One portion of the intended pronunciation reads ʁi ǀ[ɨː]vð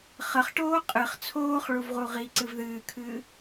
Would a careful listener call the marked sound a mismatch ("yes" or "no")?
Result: yes